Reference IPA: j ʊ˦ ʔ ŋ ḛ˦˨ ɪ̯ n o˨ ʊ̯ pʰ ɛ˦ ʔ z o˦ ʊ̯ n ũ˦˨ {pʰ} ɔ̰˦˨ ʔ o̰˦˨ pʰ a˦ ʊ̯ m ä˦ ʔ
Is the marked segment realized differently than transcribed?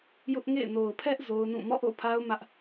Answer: yes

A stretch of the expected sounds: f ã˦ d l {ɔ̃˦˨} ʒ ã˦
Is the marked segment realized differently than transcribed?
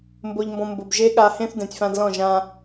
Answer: no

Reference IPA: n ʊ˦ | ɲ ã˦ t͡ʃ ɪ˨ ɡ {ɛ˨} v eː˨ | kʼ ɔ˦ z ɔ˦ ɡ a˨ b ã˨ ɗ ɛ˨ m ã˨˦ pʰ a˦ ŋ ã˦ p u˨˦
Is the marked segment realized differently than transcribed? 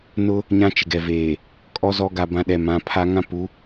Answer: no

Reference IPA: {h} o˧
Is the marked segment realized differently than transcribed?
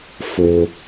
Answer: yes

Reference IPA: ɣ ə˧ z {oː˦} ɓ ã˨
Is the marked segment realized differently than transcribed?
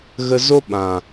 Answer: yes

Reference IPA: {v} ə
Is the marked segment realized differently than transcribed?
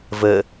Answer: no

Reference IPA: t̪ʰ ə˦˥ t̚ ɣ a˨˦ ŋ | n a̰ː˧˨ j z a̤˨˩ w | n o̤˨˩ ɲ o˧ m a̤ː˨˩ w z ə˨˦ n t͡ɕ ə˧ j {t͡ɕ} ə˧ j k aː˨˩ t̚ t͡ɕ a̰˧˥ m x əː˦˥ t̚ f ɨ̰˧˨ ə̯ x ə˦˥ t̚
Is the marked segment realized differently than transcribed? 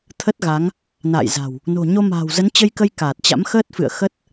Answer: yes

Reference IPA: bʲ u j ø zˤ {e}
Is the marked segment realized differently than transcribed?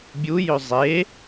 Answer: no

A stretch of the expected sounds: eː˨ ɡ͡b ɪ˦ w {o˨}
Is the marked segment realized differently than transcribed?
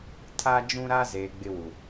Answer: yes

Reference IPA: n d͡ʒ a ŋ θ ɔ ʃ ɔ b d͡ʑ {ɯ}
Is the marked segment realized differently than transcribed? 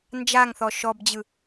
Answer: no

